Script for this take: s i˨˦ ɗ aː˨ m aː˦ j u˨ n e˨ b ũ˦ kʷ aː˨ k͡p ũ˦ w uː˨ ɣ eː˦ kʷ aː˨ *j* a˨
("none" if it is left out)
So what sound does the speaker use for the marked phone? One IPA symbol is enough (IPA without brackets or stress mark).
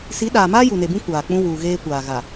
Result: ɣ